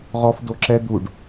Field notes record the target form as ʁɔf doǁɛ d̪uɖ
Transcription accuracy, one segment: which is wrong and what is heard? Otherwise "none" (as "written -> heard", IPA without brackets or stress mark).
none